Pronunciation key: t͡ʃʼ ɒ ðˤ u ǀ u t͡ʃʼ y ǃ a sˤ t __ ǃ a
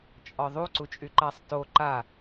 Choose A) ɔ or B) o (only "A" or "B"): B